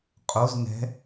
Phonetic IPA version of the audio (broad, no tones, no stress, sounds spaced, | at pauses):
qʼ o z n ɛ̤